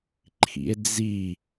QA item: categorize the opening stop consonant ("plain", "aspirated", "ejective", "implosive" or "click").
click